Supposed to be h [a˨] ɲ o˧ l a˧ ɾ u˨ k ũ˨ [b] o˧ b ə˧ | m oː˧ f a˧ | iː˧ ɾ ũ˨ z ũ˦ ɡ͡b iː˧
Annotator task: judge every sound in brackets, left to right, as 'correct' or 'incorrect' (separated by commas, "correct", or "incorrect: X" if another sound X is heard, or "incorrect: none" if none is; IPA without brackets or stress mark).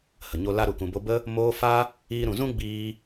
incorrect: ə˨, correct